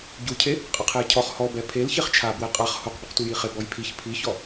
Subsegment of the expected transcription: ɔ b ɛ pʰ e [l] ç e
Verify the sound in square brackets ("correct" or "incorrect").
correct